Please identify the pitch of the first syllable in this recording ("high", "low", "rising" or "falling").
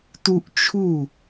high